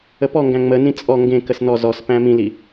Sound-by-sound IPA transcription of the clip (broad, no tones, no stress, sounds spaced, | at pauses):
ə p ɔ ŋ ɡ æ̃ ŋ͡m ə n ĩ t͡sʼ ɔ ŋ ɡ ẽ k ə s n ɔ z ɔ s p æ̃ m ĩ l i